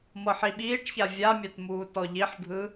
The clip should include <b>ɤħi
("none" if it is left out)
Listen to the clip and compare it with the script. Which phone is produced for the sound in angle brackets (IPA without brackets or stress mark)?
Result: m